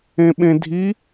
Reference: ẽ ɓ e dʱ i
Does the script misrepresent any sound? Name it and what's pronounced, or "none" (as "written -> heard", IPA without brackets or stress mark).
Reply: e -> ẽ